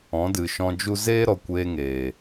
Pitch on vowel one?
rising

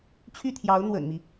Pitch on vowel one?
falling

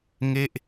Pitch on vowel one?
falling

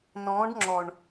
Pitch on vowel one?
rising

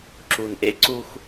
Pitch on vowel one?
low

